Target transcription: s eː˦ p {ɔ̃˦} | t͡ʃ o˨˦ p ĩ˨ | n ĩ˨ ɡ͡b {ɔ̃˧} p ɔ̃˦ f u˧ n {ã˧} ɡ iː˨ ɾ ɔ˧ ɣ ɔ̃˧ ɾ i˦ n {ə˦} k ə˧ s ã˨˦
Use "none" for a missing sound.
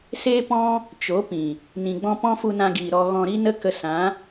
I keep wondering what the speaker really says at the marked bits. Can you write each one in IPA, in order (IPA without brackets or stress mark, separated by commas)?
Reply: ɔ̃˦, ɔ̃˧, ã˧, ə˦